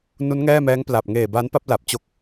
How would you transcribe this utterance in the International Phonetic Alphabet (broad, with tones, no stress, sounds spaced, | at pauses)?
n u˦˥ n ŋ ɛː˥˩ m ɛː˦˥ ŋ p l a˨˩ p̚ ŋ eː˨˩ b a˦˥ n p a˥˩ p̚ l a˨˩ p̚ t͡ɕ o˦˥ k̚